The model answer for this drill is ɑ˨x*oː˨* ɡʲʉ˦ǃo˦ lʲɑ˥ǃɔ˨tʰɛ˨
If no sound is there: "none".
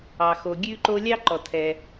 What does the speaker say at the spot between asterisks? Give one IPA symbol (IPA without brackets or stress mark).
o˨